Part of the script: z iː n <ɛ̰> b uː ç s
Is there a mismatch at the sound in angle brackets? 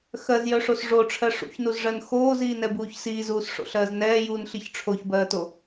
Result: yes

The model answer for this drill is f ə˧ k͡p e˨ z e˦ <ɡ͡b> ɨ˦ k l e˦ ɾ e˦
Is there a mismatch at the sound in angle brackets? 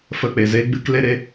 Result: no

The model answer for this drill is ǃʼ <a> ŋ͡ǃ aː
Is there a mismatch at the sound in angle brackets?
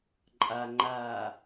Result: no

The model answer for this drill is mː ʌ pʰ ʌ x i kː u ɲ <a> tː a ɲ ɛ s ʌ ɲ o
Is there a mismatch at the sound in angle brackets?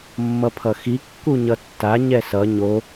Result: yes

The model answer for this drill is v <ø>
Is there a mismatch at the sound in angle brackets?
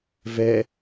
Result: yes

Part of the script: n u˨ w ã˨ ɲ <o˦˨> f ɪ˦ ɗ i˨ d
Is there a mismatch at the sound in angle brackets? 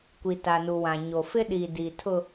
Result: yes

